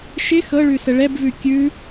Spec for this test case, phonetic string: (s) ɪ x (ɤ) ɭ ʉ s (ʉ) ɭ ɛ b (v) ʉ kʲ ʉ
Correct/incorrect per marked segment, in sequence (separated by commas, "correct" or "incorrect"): incorrect, correct, incorrect, correct